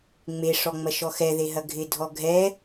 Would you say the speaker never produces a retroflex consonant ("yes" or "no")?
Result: no